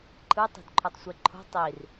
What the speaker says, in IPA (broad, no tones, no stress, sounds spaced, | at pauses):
ǃʰ ɯ tˤ e̤ d ǃʰ o tˤ sʷ e ǃʰ o̤ tˤ i r